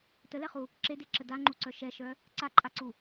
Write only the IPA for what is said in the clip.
t ə l ɛ χ u | ǁ e d e ǁ ə d a ŋ͡ǃ u ǀ œ ʃ ɛ ʃ œ | ǀ a ǃʼ a ǀ u

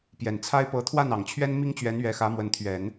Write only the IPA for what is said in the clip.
p j ɛ˨˩ n t͡sʰ a˥ ɪ̯ p ɤ˧˥ t̪ʰ w a˥˩ n ɑ˨˩ ŋ t͡ɕʰ ɥ ɛ˥ n m i˥ ŋ t͡ɕ ɥ ɛ˧˥ n ɥ ɛ˧˥ x ä˧˥ m w ə˧˥ n t̪ʰ ɥ ɛ˨˩˦ n

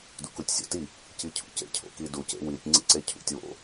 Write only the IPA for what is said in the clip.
d ṵ k u tʲ sʲ o̰ t i | c i cʰ ṵ c ḛ cʰ o̰ k i d u c ḛ w i tʲ ŋ͡ǀ ḭ ǀ e cʰ ṵ tʲ w o̰

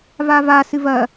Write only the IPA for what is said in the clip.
v a v a s ɨ v ɐ

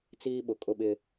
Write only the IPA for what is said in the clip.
t͡s iː˦ ɓ ʊ˨ kʼ ʊ˦˨ ɓ ɪ˦

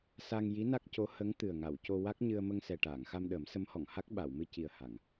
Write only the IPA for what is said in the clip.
s a˧ ŋ j i˧˥ n a˦˥ k̚ c o˧˥ h ə˧˥ ŋ t̪ ɨ˨˩ ə̯ ŋ a˨˩˨ w c o˧ w a˦˥ k̚ ɲ ɨ˧ ə̯ m ə˧ ŋ s ɛ˨˩ ʈ aː˨˩˨ ŋ x a˧ m ɗ əː˨˩˦ m s ə˧˥ m h ɔ˨˩˨ ŋ h a˦˥ k̚ ɓ a˨˩˨ w m ɨ˧ c i˨˩ ə̯ h a˨˩˨ ŋ

